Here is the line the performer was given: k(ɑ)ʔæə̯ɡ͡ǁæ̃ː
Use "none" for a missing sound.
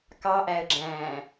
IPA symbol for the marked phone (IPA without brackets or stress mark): ɑ